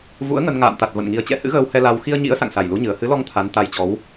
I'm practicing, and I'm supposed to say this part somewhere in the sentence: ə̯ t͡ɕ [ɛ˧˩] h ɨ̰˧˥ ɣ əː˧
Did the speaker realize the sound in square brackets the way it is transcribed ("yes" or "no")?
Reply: no